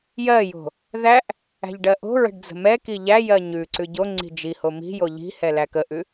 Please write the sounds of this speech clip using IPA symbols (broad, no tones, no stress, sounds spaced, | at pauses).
j ɜ j o̤ | ð æ ʔ | æ̤ ʎ ɖ ɜ ʔ o̤ ɹ ə̤ ɖ d͡z ə̤ m ɛ k i ʎ æ j ɜ ɲ ʉ ǀ ʉ ɟ o ŋ͡ǀ i̤ d͡ʒ i h o m i̤ j o ʎ i̤ h ɛ l æ k ə ʔ ʉ